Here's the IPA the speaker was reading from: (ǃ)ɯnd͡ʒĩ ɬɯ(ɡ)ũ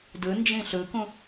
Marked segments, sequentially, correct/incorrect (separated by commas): incorrect, incorrect